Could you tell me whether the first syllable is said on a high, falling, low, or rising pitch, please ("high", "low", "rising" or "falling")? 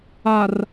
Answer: low